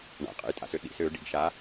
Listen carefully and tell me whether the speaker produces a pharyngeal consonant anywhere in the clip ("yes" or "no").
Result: no